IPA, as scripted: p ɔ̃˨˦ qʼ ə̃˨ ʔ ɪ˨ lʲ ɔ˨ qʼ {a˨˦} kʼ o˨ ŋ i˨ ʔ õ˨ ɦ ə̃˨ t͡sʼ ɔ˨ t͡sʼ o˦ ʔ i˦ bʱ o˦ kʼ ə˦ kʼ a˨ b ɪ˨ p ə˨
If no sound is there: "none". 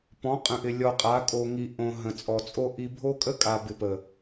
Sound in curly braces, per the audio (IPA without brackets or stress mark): a˨˦